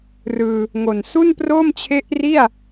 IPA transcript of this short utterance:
r ɯː˧ | ŋ o˨˩ n s u˥˩ n p r oː˥˩ m t͡ɕʰ e˦˥ ʔ r i˥˩ a̯

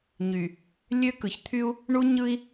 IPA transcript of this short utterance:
ɲ y˨ | lʲ ø˦ k ɯ˨ ç t̪ʰ y˦ u̯ | ɳ u˦ ɲ ɯ˦ i̯

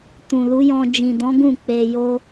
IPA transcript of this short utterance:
t ũ˨ l u˨˦ j ɔ̃˧ d͡ʒ ĩ˨ d ɔ̃˨˦ ɡ ũ˦˨ k͡p e˧ j o˦

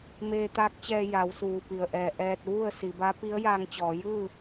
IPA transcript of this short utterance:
m eː˧ t̪ aː˧˥ k̚ t͡ɕ ɛː˧ j a˩˧ w s uː˩ p i˩ ə̯ ʔ ɛː˧˩ ʔ ɛː˧ t̚ ʋ u˥˨ ə̯ s i˩˧ b a˧˥ p i˧˥ ə̯ j aː˧ ŋ t͡ɕ ɔː˩˧ j ɯː˥˨

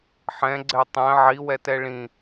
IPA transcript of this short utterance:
ħ ɛ̃ ɡ͡ǀ ɛ tˤ ɛ̃ ʕ i w ɛ t ɛ ɭ ĩ

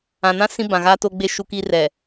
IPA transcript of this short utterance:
ã˨ n ã˦ s ĩ˦ b ã˨ ɣ aː˦ t o˦ ɡ͡b e˦ ʃ u˦ k i˦ r ɛ˨

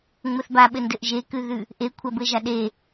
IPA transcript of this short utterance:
ŋ͡m ɘ θ b a ɓ ɘ n d ɘ ʔ ʒ e k ʉ ð ʉ | ʔ e kʷʰ a b ɘ ʒ a ɗ e

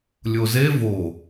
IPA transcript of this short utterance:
lʲ o z e v o

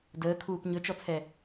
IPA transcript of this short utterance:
d əː kʰ uː p ɲ ɵ t͡ʃ ɔ t͡sʰ ɛ

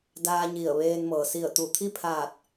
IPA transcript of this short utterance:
d aː˧ ɲ i˧˩ ə̯ ʋ eː˧ n m ɤː˩ s i˧˩ ə̯ t̪ u˧˩ t̪ʰ i˥˨ pʰ aː˧˩ t̚

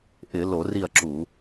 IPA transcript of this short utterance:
ʔ ɪ˧˩˧ l o˧˩˧ r i˦˨ ɐ̯ ǁ u˧˩˧

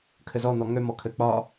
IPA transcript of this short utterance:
kʰ ə z ɔ n̪ ɔ ŋ œ m ɔ kʰ ə k͡p ɒ

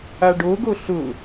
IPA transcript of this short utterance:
a ɖ o ɡ o ɬ ʊ

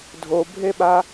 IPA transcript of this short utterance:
dʱ o bʱ e ɓ a

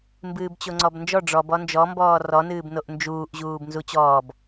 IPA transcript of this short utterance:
m b ɨː b t͡ɕ o ŋ͡ǀ ɔ b n d͡ʒ ɔ ɖ͡ʐ ɔ b ɔ n d͡ʒ ɔ m b ɔː r ɔ n ɨː b n o ʔ n d͡ʒ uː ʔ ʑ uː b n z u t͡ɕ ɔː b

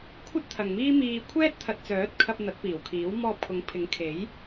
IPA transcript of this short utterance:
kʷʰ ɐ˥ t̚ t̪ʰ ɐ˨ ŋ m iː˥ m iː˧ kʷʰ ɛː˥ t̚ t̪ʰ ɐ˨ t̚ t͡s œː˨˥ t̚ kʰ ɐ˧ p̚ n̪ ɐ˨˥ t̚ p iː˨˩ w kʰ iː˨˥ w m ɔː˧ p̚ kʰ ʊ˨˥ ŋ pʰ ɪ˨˥ ŋ kʰ e˨˥ j

